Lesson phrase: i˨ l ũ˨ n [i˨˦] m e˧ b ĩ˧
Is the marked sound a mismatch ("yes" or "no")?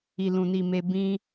yes